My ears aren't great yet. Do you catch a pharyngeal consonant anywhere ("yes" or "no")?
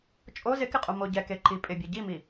no